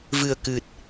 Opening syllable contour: low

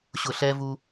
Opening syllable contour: low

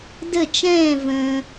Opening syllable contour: falling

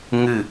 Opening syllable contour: falling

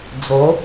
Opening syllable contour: rising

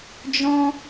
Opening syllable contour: high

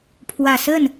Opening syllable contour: low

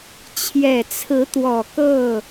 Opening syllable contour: low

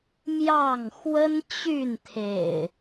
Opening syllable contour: falling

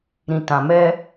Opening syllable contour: low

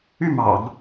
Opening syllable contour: falling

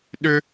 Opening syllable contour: high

